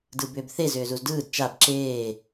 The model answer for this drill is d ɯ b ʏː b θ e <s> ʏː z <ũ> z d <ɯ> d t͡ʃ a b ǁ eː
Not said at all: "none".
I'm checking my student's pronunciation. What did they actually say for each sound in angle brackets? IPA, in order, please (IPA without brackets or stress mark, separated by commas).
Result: z, u, ɯː